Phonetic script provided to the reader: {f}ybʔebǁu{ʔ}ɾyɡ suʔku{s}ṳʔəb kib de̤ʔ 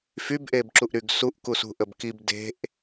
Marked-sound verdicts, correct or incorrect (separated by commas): correct, correct, correct